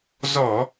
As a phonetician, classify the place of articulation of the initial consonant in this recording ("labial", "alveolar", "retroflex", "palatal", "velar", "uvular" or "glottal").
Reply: alveolar